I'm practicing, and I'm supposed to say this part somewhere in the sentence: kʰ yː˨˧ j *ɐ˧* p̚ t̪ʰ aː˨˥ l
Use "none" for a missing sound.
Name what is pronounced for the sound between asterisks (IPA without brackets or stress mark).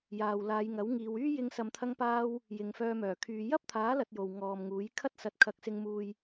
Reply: ɐ˥